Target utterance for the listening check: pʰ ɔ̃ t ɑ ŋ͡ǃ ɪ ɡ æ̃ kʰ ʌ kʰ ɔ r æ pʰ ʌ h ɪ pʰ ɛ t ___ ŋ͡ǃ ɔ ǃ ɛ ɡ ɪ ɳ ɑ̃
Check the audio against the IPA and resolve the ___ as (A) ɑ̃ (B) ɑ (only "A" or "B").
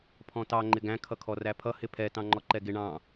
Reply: A